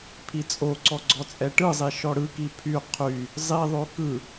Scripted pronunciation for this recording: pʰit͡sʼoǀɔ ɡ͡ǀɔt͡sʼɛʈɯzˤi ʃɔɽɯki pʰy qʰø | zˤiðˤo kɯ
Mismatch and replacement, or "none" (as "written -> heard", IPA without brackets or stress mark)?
ø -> y